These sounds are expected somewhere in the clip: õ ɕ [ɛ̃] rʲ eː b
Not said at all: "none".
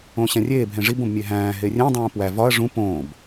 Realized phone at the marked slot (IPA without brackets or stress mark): æ̃